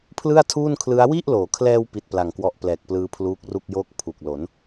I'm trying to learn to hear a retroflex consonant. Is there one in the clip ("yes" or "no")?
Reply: no